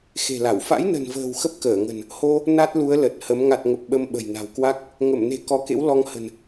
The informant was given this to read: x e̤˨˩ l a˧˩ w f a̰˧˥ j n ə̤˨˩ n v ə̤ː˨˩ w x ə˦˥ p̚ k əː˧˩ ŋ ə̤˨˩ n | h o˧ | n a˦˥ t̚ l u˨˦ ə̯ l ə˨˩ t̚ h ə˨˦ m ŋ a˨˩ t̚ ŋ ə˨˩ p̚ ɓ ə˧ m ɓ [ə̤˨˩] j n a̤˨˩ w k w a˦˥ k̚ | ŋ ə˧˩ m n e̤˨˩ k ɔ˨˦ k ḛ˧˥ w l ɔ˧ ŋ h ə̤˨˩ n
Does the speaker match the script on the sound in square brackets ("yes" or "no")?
yes